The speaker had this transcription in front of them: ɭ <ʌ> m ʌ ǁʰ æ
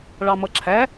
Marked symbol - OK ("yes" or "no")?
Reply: no